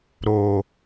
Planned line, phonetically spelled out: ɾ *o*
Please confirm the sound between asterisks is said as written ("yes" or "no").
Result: yes